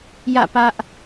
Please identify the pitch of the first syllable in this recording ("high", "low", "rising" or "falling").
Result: falling